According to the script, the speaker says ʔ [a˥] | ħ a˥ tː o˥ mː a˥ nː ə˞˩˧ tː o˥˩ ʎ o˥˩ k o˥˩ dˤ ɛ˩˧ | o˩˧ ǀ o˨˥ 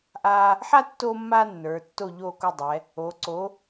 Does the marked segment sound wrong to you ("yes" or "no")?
no